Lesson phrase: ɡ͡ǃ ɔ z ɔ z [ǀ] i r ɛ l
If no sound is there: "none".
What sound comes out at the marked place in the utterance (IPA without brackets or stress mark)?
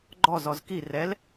k